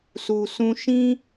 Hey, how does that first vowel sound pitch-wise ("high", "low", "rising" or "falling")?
low